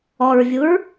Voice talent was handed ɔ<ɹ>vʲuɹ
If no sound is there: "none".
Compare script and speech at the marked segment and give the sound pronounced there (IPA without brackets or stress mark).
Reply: ɹ